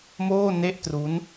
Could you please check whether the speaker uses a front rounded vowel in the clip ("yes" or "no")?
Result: no